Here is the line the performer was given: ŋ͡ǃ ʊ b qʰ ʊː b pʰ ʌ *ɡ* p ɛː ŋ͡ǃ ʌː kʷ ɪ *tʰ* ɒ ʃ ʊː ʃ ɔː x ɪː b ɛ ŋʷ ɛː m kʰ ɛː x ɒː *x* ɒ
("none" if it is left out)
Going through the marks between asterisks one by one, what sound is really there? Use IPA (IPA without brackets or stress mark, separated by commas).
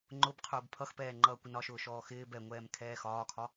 x, n, kʰ